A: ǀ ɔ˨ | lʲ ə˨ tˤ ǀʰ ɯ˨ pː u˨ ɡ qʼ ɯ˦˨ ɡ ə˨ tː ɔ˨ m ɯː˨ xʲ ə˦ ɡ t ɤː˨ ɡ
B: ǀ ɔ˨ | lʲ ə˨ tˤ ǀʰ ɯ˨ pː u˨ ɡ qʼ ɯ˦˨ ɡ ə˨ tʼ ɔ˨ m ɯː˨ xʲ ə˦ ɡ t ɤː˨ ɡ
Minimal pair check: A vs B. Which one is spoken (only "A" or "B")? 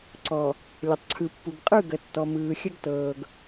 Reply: A